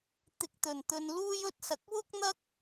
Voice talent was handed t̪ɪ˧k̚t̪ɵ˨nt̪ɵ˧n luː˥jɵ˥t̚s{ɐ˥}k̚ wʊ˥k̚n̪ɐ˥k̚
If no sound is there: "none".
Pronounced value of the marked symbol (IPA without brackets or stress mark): ɐ˨